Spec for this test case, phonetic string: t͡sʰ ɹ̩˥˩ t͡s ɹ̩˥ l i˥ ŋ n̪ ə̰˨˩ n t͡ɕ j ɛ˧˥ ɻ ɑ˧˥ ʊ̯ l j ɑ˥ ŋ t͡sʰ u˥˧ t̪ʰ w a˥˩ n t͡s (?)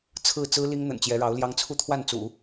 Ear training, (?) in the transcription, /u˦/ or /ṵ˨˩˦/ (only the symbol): ṵ˨˩˦